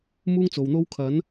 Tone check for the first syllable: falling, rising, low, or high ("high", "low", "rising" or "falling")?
high